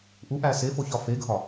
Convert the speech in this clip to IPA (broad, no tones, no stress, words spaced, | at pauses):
ʔuʔæ sefoçɒ feɡʱɒ